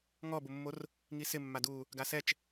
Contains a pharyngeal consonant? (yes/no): no